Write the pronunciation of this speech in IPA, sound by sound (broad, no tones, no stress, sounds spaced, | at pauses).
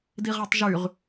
d i ʁ a tˤ ʒ y ʁ